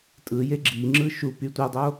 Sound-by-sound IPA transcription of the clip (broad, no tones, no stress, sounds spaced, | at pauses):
tʼ ɯ j e ɡ͡ǁ i ŋ͡ǁ ɯ ʃ u p y tʷ e dˤ o